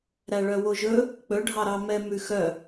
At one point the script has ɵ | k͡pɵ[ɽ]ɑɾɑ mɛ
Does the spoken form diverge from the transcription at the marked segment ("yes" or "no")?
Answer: yes